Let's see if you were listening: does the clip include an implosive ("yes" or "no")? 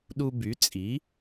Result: yes